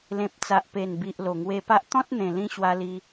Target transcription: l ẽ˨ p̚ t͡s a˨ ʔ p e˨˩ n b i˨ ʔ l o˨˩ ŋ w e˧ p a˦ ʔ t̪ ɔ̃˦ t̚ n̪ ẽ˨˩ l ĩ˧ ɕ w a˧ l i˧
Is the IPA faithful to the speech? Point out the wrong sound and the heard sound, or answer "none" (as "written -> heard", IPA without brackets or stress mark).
none